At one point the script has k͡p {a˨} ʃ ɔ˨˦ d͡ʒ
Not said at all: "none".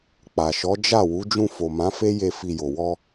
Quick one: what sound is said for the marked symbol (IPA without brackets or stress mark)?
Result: a˨